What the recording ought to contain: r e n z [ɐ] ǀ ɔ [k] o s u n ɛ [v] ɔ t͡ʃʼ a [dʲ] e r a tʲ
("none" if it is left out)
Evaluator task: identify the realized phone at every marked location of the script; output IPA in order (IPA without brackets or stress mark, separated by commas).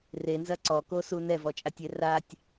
ɐ, k, v, tʲ